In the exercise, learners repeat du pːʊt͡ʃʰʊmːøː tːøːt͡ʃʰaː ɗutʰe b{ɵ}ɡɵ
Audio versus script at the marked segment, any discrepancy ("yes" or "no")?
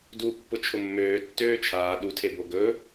yes